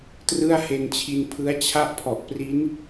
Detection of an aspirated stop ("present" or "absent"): present